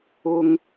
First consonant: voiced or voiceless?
voiced